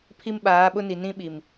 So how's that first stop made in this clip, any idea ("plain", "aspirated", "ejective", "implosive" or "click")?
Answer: aspirated